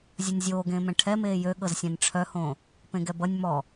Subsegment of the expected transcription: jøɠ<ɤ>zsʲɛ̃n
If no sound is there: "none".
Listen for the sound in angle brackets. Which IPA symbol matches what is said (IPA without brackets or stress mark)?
ɤ